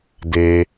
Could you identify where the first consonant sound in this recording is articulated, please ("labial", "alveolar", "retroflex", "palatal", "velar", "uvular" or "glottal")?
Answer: alveolar